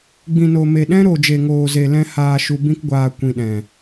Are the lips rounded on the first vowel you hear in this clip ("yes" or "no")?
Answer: no